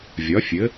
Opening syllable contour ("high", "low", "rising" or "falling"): rising